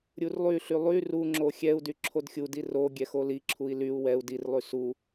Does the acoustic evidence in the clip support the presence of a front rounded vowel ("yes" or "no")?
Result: yes